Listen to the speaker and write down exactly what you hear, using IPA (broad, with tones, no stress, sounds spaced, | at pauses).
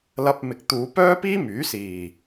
l ɐ˧ p̚ m ɪ˨ k̚ t̪ uː˨˧ p œː˥ p iː˥ m yː˨˥ s iː˨˩